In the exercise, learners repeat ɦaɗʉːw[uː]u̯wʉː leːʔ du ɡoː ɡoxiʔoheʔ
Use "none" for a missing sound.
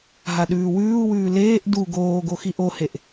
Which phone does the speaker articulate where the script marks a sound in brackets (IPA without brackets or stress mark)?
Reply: ʉː